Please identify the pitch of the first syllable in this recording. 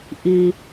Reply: low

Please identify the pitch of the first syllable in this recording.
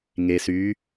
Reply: low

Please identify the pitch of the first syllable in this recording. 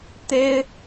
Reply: high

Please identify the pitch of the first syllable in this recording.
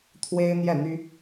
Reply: high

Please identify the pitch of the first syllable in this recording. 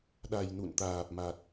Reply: low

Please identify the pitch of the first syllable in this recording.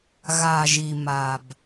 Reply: low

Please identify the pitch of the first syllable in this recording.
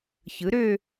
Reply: rising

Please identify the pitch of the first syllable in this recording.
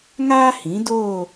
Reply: high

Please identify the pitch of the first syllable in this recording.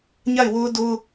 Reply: falling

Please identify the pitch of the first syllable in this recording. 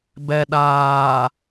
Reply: low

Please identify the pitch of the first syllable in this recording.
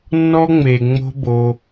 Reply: high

